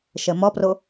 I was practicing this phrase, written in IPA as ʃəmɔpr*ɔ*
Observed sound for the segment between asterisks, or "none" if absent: o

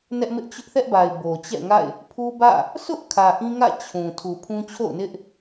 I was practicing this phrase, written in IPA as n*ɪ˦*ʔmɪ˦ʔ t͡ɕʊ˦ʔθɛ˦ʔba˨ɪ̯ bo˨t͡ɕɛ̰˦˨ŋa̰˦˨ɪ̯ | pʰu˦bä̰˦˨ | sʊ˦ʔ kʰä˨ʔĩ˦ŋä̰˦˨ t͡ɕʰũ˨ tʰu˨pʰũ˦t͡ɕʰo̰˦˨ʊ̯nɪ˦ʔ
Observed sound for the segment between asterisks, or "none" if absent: ɛ˦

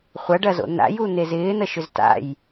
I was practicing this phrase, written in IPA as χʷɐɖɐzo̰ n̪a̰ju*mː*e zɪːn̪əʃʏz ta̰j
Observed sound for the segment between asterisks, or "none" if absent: n̪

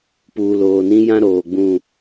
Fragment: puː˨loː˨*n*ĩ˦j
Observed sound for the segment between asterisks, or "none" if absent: n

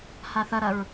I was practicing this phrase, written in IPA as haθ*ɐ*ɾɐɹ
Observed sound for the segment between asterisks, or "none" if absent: ɐ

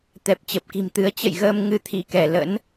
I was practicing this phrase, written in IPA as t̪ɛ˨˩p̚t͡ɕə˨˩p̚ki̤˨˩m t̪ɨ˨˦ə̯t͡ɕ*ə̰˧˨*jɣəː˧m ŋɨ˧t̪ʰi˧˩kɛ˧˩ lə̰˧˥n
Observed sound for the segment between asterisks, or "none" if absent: ə̰˧˨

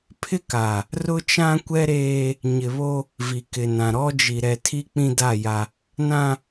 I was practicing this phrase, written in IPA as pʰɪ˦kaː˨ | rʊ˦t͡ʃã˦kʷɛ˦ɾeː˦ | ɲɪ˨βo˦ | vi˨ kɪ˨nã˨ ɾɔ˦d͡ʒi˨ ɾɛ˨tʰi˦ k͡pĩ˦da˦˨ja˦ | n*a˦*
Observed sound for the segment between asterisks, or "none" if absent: ã˦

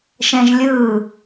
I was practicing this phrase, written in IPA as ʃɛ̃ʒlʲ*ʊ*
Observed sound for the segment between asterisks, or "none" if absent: ɯ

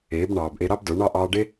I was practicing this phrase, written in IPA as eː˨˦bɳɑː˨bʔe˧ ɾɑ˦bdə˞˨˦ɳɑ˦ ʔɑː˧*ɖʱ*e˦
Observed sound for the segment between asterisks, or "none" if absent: ɖ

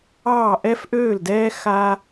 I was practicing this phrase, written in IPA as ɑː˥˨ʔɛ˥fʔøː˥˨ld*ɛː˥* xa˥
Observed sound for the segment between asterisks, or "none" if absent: ɛː˥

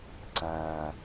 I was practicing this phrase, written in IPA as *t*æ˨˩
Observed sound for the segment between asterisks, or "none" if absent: ǀ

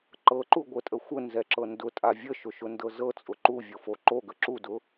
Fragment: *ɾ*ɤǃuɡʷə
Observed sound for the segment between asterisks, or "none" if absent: ǃ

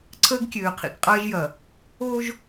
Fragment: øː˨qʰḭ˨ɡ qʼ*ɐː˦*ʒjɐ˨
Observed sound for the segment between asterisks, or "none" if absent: ɐː˦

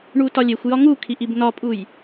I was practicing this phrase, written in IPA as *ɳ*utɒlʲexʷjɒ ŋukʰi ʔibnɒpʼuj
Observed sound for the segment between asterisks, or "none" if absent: ɳ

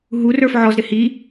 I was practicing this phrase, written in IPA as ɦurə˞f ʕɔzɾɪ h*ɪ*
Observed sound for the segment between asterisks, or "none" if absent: i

